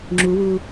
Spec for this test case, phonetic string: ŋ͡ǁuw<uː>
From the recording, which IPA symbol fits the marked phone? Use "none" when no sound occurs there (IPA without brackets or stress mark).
uː